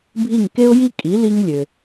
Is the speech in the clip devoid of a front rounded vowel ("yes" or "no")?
no